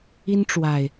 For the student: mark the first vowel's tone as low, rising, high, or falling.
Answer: high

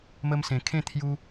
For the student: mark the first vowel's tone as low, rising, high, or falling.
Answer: high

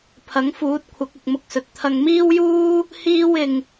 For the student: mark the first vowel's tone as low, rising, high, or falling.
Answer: rising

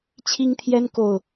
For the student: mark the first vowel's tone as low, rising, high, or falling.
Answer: high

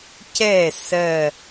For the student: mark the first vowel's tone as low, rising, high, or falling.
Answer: falling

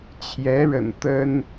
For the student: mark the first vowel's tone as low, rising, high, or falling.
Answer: rising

